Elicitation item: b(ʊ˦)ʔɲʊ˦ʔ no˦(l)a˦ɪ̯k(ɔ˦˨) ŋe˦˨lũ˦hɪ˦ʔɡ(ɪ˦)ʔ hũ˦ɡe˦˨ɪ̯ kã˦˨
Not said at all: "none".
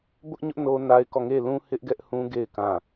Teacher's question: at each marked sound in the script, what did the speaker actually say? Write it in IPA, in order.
ʊ˦, n, ɔ˦˨, ɛ˦

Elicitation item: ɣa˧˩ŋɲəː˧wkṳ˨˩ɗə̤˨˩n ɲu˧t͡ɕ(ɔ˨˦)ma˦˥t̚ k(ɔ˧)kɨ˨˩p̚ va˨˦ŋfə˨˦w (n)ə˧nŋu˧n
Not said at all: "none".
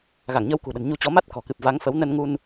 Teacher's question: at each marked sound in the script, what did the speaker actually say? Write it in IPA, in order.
ɔ˨˦, ɔ̤˨˩, n

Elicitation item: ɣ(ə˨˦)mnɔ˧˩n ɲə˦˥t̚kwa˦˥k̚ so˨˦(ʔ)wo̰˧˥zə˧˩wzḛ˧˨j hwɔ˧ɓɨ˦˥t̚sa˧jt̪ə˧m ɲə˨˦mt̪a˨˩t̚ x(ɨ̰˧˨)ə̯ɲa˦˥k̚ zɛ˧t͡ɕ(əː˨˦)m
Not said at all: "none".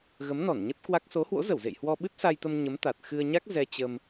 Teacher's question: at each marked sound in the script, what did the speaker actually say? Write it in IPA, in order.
ə˨˦, h, ɨ˧, əː˧

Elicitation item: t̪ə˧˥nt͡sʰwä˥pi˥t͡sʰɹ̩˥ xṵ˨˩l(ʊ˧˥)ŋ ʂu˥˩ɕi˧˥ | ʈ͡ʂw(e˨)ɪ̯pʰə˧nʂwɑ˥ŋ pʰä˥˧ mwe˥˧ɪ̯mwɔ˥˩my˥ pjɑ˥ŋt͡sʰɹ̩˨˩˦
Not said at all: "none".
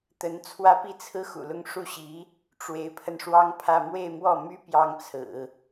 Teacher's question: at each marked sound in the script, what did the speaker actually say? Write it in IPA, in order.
ʊ˥˧, e˧˥

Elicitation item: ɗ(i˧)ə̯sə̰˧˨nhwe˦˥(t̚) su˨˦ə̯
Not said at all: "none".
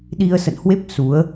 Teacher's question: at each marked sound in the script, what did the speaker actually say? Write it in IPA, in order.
i˧, p̚

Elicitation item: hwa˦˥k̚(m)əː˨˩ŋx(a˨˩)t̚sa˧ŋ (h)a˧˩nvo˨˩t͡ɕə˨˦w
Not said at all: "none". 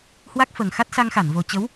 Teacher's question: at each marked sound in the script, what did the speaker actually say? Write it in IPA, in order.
f, a˦˥, x

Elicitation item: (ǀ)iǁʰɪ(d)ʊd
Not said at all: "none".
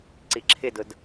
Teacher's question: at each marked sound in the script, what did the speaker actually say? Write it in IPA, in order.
ǀ, d

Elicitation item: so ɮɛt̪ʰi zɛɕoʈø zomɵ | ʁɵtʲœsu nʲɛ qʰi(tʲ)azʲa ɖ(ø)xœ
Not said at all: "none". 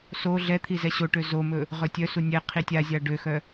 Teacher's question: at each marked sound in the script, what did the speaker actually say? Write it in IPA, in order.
tʲ, ø

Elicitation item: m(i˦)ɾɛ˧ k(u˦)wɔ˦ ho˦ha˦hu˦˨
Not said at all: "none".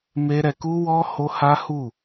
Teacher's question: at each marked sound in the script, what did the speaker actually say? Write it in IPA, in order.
e˦, u˦

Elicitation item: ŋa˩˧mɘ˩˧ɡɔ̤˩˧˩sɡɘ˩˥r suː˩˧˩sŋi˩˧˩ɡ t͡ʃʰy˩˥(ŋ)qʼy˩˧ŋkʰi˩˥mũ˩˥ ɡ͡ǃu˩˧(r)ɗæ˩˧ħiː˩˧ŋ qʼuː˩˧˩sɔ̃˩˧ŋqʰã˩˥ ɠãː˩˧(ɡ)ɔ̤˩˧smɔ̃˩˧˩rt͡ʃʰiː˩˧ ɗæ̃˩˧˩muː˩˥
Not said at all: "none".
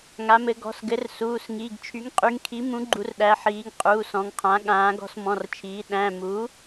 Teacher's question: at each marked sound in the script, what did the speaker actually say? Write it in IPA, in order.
ŋ, r, ɡ

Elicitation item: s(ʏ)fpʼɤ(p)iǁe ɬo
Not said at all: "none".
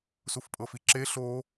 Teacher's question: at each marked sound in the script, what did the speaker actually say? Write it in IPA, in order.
u, f

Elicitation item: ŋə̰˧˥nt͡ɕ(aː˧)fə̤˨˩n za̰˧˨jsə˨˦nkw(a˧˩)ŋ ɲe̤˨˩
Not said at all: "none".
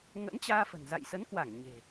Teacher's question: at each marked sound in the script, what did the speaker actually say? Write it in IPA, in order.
aː˧, a˧˩

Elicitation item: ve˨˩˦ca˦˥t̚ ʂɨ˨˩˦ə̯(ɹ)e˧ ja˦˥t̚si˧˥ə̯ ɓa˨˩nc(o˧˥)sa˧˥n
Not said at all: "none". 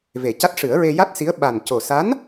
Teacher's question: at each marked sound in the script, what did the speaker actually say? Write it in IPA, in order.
ɹ, o˨˩

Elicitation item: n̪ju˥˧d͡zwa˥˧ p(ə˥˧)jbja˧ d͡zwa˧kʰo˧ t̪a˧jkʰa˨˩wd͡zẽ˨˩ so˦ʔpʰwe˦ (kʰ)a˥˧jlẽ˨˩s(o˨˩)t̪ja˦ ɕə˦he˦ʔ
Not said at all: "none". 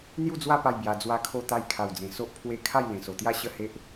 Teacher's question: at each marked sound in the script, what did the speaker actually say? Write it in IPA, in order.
a˥˧, kʰ, o˨˩

